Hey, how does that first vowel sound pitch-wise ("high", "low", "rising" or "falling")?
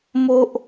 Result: high